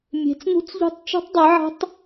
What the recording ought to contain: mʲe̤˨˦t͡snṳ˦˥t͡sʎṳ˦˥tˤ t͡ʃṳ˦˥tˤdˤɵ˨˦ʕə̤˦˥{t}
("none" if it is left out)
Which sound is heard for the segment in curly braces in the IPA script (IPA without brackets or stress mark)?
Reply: tˤ